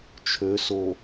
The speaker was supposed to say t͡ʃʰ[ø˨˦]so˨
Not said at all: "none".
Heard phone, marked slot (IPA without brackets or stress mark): ø˨˦